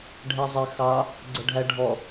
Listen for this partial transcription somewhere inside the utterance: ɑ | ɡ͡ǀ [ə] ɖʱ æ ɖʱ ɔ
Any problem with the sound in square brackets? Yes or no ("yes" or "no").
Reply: no